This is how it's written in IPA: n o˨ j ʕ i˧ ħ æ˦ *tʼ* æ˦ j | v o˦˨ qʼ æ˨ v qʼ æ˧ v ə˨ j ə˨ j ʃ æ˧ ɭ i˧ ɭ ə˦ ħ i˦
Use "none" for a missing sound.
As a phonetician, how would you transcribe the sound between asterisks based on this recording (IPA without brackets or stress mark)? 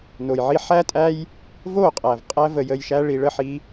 tʼ